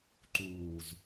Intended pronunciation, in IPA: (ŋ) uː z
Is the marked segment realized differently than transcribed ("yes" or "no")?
yes